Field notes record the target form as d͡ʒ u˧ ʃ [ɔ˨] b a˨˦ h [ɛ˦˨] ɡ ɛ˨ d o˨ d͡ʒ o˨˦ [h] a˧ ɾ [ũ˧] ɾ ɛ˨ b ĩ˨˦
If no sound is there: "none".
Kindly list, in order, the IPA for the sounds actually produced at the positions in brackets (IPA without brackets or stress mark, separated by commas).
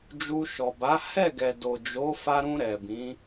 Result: ɔ˨, ɛ˦˨, f, ũ˧